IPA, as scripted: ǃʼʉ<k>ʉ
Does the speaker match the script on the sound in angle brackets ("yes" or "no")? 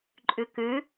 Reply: yes